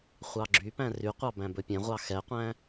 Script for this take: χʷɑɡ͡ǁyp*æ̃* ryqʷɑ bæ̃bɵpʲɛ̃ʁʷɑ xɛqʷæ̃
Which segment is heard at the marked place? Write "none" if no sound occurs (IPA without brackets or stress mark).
æ̃